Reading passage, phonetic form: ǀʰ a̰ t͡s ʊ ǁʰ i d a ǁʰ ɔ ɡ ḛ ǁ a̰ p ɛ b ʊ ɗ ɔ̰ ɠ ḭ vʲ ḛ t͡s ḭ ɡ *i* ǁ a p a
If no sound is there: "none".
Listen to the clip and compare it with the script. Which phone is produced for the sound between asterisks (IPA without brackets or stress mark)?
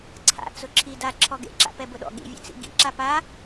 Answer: ḭ